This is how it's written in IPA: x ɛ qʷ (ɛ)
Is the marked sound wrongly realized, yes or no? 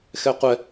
no